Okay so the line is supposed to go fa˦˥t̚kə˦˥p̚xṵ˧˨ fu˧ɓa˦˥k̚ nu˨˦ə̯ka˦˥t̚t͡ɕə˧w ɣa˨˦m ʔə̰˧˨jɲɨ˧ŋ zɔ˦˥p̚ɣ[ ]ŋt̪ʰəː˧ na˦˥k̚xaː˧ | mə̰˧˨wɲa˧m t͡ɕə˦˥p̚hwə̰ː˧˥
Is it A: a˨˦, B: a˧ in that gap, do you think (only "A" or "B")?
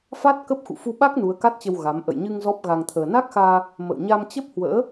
B